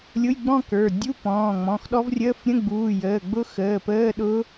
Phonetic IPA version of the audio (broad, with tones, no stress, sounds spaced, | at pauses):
lʲ ʊ˧˥˧ j ɡ͡b ɔ̃˥˧ k ə˞˩˧˩ dʲ u˧˥˧ p ɔ̃ː˩˧˩ ŋ͡m ɔ̃˩˧˩ x ɗ ɔ˦˥ v rʲ əː˧˥˧ f ɾʲ ə̃˧˥˧ ɡ͡b uː˩˧˩ j əː˩˧˩ ɡ͡b ʊ˦˥ x əː˩˧˩ p əː˧˥˧ ɗ ʊ˦˥